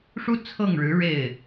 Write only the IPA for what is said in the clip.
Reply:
ʂu˥ t͡sʰɤ˥˩ŋɻɻ̩˧˥ ɻe˥˩ɪ̯

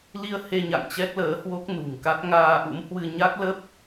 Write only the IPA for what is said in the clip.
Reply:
li˧ə̯he˧ ɲa̰˧˨ŋt͡ɕɛ˦˥k̚ləː˨˦hwo˦˥k̚ nṳ˨˩ŋka˦˥t̚ ŋaː˧ʔṵ˧˥mhwɨ˧ ɲa˦˥k̚lə˦˥p̚

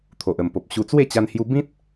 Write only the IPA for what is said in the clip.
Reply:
t̪ʰo˨ʔ ə˨˩mpo˨p̚ɕu˧ t͡swe˥˧t͡ɕa˧nhju˧ bĩ˦t̚

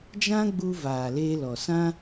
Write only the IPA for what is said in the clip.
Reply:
d͡ʒã˦ɡ͡bu˧ vaː˨leː˧lɔ˨ sã˦

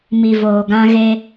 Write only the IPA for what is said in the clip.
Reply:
mi˨voː˨ɡã˦ ɣe˦

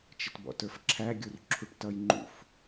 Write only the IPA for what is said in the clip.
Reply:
t͡ʃɪtbɔ̰tə˞fǁʰæ ɡʲurǁʰuʈtʌj ŋ͡ǃṵf

